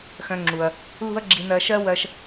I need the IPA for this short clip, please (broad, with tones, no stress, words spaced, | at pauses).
xœ̃˧ŋ͡ǁu˩ɐ̯ | lṳ˥ɐ̯ɡ͡ǁi˧nɜ˧ʃɜ˥ wɜ˧ʃ